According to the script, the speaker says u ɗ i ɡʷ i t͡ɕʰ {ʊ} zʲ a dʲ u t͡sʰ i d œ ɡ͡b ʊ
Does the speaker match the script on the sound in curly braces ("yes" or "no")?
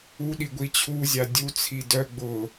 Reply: no